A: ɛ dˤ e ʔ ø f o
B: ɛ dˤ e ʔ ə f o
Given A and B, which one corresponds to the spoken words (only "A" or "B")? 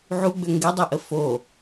B